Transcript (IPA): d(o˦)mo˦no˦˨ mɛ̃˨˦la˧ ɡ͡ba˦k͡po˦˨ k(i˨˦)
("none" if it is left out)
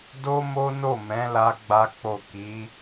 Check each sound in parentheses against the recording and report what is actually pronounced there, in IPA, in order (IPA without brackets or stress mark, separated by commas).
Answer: o˦, i˨˦